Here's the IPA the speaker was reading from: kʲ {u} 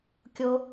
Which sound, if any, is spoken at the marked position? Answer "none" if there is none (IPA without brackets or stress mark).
o